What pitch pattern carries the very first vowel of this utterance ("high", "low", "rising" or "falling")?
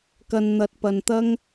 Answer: low